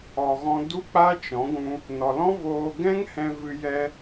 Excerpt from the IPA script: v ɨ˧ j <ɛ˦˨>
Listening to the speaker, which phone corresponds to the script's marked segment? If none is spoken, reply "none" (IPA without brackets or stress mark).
ɛ˧